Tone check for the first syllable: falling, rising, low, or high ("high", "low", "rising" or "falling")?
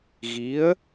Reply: rising